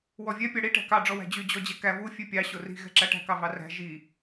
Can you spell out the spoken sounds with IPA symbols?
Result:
wɔvʲɛ pʲɑɽi ʈæ̤kɑ ɖ͡ʐɔwæ̤d͡ʑy d͡ʑɔd͡ʑɛkæ vu fʲʉpʲɑ ɕori̤ ɣɛ̤ǁæʈæ̤ kɑvɑræ̤ ʒi

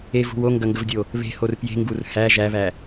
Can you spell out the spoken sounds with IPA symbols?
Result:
evṳ woŋɡɐŋɡəvdʲo | βe̤hor pje̤ŋɡur hæ ʒæβæ

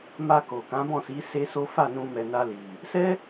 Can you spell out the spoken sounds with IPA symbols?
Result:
ma˧ko˨ kã˨˦bɔ̃˦˨si˨˦ se˦so˦ fa˦˨nũ˧mɛ˨ na˧ li˨ | sɛ˦

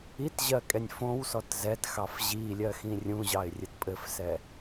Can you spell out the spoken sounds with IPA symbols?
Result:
itʑɜkʼɛnʲ fõwsɔt zɛtxɑf ʑilʲɜxĩ rʲũʑɑɪ̯rʲɘt pʼɘfsɛ

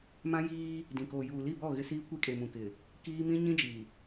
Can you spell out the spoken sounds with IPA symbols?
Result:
mã˦jiː˦ | dĩ˨ koː˨juː˨li˦˨bɔ˦˨ ɣɪ˦siː˦ kʷi˦kʼe˨mũ˨kɪ˨ | kiː˦ mĩ˦ ɲĩ˦d͡ʒi˨

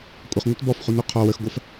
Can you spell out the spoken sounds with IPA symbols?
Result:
kʷʼəχŋʷət bɔfχunu qʰɔ wəxɡʷɜf

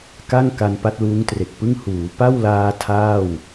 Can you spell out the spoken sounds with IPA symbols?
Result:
ka˥˩ŋka˧n pa˦˥t̚luː˦˥ŋtre˨˩k̚pɯ˥˩ŋ huː˩˦pa˥˩wlaː˧ tʰaː˥˩w

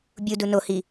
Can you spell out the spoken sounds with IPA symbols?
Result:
bʲudu nohi

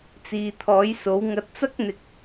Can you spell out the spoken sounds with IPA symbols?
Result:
t͡siː˨t̪ʰɔː˨˥jso˨˥wŋɐ˧t̚ t͡sɐ˥k̚n̪ɪ˨k̚

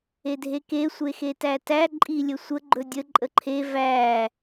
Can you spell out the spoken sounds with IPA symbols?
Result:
edʱeke sʷexetætæ ǃʼilʲəsʷə ɡ͡ǃɵdʲə ǃʼəǃʰe væ

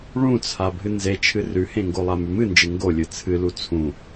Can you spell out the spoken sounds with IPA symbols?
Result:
ɭũt͡sʰa bʱɨnzet͡ʃʰɨ rʉhẽŋɡolˠa mʉmɨnd͡ʒɨ ŋɡolʲɨ t͡sʰɨlu t͡sʰũ

